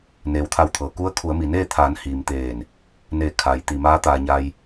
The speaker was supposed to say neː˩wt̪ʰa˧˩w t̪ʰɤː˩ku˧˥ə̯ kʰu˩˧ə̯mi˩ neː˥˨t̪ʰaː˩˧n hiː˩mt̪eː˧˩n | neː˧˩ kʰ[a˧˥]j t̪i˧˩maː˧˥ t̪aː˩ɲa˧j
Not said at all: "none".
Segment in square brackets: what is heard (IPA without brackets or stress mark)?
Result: a˩